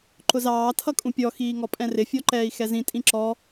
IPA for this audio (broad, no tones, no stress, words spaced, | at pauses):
ǃʊzɑː tʰʌkʼũpʲɔ xiːŋɔpʼɛ̃rɪ fʲɔǃɛːi̯xɛzĩ tʼĩǁɔ